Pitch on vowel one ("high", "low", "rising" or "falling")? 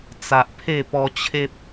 low